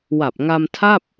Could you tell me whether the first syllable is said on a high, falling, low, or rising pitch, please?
low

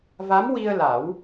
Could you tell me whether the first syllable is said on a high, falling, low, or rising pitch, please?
rising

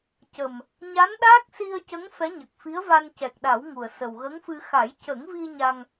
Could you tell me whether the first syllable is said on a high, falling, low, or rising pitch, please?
low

